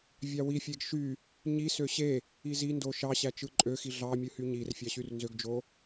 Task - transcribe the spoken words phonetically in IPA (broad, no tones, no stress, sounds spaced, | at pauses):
vʲ ɑ w i fʲ e ɡ ʃ y | ɲ i s ø ɕ e | i z i n d o ʃ ɑ ɕ æ t͡ʃ ɯ ǃʼ ø x i ɮ ɑ mʲ ɯ h y ɲ i r fʲ ɑ ɕ y r n z ø ɡ d͡ʒ o